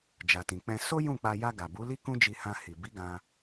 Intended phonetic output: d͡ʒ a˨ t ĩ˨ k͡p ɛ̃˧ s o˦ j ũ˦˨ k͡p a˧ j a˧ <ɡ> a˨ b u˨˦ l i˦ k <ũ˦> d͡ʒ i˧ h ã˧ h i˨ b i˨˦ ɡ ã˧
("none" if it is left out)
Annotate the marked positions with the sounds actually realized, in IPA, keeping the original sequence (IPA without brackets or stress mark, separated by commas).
ɡ, ũ˦